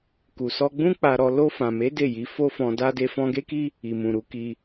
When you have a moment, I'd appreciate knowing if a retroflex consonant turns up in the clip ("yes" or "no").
no